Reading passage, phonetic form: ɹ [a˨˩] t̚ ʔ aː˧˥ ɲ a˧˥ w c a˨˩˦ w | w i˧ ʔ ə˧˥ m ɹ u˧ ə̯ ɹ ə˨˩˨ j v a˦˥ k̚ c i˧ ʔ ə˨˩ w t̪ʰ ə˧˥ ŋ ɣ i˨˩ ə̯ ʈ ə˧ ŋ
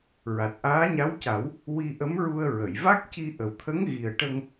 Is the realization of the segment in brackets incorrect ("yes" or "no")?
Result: no